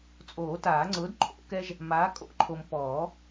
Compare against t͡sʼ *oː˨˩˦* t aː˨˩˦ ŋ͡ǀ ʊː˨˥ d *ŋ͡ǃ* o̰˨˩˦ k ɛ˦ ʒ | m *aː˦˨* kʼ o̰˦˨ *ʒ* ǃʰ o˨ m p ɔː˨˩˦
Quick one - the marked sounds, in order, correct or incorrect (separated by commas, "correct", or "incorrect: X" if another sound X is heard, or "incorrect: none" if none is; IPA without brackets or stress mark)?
correct, incorrect: ǃʰ, incorrect: aː˨˥, incorrect: none